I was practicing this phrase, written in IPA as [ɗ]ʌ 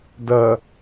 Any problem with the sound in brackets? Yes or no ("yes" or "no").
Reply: yes